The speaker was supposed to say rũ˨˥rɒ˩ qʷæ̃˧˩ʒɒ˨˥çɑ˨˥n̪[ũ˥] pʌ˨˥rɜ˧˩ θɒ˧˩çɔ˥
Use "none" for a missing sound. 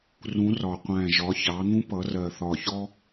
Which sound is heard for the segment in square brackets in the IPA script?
ũ˥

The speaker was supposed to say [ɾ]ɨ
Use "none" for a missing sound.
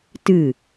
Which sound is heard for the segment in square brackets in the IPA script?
t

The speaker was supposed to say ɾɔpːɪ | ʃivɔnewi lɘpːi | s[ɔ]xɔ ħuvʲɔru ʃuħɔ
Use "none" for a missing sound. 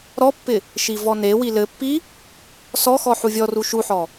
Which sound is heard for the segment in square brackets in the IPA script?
ɔ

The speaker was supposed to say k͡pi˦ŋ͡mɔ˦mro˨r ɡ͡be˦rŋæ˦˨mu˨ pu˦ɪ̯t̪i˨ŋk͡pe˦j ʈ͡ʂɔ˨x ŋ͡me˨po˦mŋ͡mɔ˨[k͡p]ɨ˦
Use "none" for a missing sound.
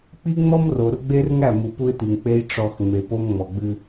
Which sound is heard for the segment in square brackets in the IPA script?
ɡ͡b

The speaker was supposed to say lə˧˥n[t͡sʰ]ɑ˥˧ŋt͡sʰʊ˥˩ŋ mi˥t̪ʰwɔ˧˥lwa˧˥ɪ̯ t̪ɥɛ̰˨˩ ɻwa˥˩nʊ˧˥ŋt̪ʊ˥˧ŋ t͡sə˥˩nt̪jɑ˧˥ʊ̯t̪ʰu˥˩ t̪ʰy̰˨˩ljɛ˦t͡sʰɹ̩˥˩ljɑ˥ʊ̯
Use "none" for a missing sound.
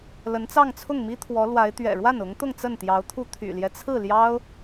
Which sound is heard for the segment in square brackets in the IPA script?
t͡s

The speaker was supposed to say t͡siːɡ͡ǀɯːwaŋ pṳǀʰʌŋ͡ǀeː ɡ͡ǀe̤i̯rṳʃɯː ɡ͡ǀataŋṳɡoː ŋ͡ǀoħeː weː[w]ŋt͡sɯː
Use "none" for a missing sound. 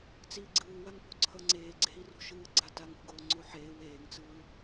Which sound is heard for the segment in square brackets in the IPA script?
none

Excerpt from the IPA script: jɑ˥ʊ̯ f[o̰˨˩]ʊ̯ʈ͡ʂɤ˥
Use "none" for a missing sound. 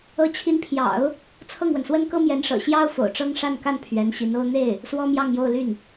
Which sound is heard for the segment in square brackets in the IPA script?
o̰˨˩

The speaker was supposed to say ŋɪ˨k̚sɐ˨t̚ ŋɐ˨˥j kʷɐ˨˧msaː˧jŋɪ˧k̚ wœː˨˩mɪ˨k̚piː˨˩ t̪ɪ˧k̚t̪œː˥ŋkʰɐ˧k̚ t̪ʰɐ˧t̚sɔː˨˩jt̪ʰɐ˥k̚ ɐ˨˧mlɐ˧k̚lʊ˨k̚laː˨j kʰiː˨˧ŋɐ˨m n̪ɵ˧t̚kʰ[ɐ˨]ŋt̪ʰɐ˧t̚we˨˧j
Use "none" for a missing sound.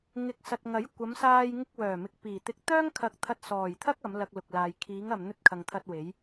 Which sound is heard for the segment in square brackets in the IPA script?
ɐ˨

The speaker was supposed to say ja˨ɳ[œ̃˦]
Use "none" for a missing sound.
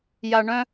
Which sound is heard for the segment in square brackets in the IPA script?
œ̃˦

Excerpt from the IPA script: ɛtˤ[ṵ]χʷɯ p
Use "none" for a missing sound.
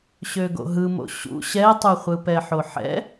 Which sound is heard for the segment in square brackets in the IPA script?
u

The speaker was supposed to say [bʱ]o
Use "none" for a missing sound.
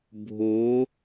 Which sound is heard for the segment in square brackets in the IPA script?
bʱ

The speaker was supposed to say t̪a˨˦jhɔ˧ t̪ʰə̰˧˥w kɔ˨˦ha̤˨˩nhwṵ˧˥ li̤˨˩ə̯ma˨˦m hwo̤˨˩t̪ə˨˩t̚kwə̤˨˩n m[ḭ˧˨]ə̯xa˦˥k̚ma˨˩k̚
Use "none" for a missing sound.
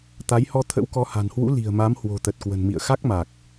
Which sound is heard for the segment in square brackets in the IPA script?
ḭ˧˨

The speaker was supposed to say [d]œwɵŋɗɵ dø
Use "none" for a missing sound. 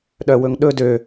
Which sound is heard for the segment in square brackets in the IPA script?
ɗ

